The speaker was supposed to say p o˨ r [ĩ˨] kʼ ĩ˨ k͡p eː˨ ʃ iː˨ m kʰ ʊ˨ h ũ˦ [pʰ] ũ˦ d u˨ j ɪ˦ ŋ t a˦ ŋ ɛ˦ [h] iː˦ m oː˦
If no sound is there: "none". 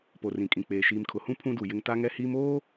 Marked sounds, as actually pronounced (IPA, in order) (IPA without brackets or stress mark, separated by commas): ĩ˨, pʰ, h